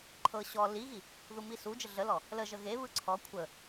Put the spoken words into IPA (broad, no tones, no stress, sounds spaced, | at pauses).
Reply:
ǃʰ ɤ ɕ ɔ l i ɣ i | ð u m i s u d͡ʒ ə ɮ ə l ɔ | l ə ʒ ə ɣ e β ɯ ǀʰ ɔ kʷʰ ə